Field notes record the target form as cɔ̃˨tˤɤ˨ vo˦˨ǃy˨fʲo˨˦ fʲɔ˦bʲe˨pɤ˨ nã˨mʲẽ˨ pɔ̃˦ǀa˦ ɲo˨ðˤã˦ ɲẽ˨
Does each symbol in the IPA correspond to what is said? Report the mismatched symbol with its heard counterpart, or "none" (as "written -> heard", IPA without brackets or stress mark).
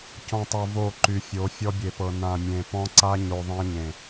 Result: none